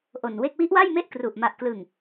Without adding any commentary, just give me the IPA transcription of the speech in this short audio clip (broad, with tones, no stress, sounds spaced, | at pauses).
ʔ o˨˩ n w e˥˩ k̚ w i˦˥ ʔ w a˥˩ j m e˥˩ ʔ k r u˨˩ ʔ m a˨˩ ʔ k l ɯ˨˩ ŋ